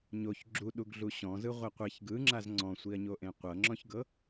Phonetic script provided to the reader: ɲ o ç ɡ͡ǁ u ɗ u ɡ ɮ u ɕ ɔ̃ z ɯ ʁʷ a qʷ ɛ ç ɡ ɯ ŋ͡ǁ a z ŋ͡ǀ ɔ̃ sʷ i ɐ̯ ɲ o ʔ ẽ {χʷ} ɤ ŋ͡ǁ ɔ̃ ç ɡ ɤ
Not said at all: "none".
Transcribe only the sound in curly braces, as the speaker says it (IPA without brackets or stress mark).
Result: qʷ